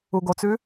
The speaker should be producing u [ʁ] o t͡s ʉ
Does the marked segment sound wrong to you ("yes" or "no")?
yes